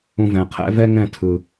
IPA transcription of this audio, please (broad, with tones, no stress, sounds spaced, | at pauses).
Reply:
ũ˧ v ɛ̃˨ qʰ ɛ̰˦ v ɛ˦ ŋ ɛ̃˦˨ tʰ ɯ˨